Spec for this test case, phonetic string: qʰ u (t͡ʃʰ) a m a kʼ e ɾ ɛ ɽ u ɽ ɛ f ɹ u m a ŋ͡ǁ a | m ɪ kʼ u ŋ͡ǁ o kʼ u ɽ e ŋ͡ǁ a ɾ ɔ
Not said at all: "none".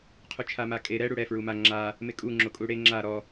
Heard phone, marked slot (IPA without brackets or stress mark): t͡ʃʰ